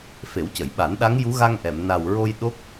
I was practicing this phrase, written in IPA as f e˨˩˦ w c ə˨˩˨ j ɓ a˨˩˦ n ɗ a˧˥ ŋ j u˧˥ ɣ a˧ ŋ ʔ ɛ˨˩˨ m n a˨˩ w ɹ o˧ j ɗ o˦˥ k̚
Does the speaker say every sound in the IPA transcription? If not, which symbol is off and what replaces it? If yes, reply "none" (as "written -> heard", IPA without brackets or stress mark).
none